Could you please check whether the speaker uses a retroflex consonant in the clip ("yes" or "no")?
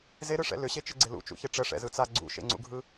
yes